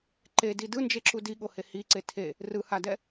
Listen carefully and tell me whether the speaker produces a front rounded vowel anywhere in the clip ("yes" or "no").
no